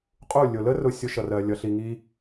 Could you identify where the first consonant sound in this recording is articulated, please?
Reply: uvular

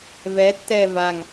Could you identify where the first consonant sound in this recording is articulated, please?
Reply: labial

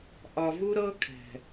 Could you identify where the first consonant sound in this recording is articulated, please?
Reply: glottal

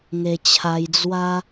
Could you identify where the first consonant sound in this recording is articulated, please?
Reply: velar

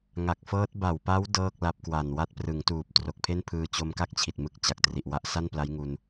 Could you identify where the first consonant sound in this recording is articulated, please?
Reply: velar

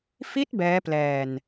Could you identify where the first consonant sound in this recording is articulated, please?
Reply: labial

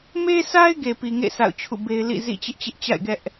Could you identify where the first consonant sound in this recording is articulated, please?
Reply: labial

